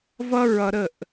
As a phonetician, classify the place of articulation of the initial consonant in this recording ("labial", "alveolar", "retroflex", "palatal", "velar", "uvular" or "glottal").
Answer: labial